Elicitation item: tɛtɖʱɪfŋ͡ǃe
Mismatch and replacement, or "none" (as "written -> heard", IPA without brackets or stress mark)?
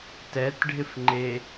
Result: none